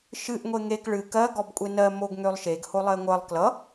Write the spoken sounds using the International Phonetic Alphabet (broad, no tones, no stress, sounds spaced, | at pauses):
ʃ ɨ ʔ ŋʷ e ŋ e k ɭ ɨ k ɜ ɡ ɔ b kʷʼ e n ɜ m o ɡ ŋ ø lˠ ʃ e ɡ h o lˠ ɜ ŋʷ ɜ lˠ k l ʌ